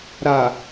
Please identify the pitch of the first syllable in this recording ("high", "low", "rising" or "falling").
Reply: low